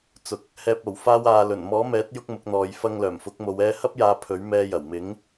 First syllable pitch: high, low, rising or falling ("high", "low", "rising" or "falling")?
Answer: low